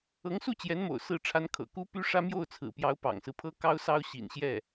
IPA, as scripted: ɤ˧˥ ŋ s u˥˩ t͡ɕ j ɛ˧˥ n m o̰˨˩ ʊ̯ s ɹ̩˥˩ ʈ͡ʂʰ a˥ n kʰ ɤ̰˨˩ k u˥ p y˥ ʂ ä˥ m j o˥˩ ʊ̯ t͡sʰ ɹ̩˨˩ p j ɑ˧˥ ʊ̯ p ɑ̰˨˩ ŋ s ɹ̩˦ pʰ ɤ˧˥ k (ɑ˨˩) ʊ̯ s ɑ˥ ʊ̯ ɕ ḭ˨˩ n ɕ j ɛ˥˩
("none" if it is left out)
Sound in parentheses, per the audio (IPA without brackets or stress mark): ɑ˥